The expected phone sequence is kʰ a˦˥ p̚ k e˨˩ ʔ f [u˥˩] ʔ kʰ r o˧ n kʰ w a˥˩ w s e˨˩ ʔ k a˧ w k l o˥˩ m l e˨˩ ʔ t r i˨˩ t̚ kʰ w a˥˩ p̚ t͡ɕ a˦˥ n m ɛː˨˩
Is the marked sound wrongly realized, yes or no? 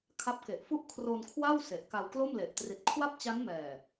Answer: no